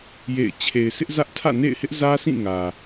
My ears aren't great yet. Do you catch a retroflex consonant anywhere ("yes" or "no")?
no